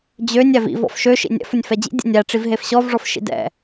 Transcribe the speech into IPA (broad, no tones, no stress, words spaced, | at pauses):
d͡ʑønʲ ævḭv ɔ̰fʃø ʃḭnʲɛ̰f ʊnʲfɛd͡ʑḭ dʲɛ̰nʲæ ʈ͡ʂivɦefɕɔv ʐɔfʃḭdɛ̰